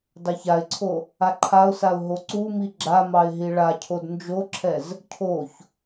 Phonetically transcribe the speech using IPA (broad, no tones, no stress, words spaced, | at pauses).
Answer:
dɑçaɪ̯ǀʰo | aǃʰaʊ̯saʊ̯ ɦoǀumi ɡ͡ǁamɑɪ̯ ɦiɭacʰod nd͡ʒoǁʰɛz | cʰoç